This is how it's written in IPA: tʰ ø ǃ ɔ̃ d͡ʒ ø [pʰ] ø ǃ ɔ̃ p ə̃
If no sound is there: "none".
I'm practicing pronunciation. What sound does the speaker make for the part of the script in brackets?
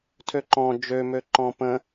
m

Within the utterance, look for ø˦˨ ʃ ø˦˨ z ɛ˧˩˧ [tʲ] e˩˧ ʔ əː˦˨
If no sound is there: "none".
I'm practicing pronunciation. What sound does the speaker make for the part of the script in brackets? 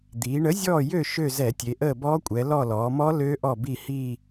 tʲ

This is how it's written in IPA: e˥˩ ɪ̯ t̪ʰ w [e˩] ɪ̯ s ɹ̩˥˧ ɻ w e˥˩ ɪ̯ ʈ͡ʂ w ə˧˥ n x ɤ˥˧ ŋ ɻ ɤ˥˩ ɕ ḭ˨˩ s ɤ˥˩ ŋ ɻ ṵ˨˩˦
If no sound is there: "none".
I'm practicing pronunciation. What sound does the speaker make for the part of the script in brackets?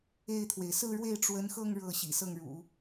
e˩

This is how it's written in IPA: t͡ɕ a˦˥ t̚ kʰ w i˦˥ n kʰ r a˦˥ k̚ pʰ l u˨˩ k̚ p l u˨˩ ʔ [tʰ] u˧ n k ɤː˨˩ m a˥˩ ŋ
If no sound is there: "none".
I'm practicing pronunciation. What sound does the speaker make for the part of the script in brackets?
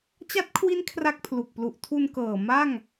tʰ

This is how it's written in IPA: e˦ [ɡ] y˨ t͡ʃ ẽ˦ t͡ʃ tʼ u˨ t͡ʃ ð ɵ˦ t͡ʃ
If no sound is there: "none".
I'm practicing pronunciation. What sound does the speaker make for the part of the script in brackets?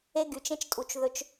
ɡ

